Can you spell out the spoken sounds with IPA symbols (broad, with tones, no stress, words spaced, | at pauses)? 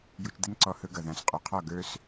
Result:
ju˧t͡ʃd̪ɘ˥nǀɔ˧ hɵ˧ɡʌ˩ ðã˩˥sqʼo˩˥qʰɔ˥˩ ɡə˞˧s